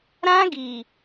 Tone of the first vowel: high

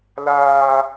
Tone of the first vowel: high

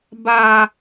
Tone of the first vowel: high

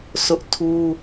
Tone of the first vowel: high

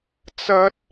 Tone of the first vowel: high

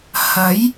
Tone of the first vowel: rising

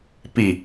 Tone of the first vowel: low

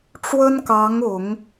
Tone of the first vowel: high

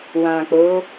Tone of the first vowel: low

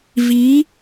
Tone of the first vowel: rising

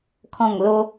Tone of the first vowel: low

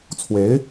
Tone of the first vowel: rising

